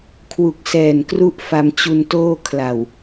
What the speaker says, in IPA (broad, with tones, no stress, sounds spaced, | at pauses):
kʰ w u˨˩ k̚ s ɛː˨˩ n k r u˦˥ ʔ f a˧ m t͡ɕ u˧ n t oː˥˩ kʰ l a˨˩ w